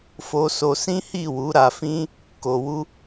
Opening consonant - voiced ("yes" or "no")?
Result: no